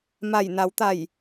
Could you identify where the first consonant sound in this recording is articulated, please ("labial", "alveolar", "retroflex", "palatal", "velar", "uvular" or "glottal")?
labial